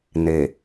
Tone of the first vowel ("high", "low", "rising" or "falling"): low